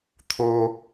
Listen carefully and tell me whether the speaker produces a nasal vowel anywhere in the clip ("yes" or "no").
no